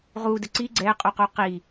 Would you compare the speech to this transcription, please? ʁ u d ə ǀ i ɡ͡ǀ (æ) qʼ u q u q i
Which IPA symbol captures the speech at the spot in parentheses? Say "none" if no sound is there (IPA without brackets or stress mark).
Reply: ɛ